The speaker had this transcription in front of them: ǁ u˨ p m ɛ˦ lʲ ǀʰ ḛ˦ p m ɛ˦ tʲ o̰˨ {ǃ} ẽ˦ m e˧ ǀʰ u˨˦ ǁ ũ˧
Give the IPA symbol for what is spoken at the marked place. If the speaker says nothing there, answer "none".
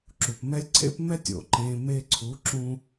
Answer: ǃ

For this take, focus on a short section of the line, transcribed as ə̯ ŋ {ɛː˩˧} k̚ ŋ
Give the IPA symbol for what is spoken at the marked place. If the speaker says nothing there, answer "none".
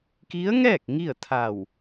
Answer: ɛː˥˨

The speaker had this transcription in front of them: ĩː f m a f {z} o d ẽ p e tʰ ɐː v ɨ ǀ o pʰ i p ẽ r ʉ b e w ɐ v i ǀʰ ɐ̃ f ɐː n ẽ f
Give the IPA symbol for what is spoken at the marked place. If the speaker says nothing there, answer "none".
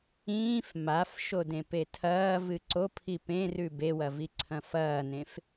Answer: ʃ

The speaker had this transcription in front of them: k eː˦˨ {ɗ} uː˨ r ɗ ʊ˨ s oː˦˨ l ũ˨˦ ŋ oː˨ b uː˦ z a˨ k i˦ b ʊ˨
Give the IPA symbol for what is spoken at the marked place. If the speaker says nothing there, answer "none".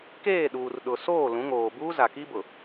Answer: ɗ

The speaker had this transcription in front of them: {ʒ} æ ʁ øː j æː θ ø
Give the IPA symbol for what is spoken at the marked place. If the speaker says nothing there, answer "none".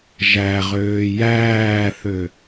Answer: ʒ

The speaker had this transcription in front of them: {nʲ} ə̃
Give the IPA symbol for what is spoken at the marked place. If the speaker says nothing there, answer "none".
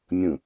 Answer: nʲ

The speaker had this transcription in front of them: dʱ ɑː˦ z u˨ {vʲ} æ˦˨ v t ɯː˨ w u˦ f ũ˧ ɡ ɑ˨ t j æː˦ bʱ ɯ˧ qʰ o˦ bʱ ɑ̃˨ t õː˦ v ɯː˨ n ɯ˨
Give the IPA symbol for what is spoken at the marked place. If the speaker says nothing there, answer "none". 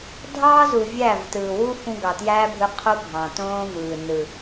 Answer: vʲ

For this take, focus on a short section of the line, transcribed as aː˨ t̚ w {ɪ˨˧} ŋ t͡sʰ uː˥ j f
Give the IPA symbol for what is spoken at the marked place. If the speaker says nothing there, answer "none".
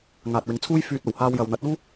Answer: ɪ˨˥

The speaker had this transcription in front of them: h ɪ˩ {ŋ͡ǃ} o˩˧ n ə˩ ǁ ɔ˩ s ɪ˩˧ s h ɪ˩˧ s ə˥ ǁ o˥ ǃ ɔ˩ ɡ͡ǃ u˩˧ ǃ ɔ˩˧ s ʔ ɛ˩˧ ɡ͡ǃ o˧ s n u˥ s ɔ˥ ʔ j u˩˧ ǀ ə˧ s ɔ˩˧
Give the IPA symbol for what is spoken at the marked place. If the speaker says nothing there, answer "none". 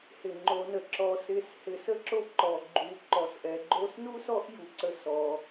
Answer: ŋ͡ǃ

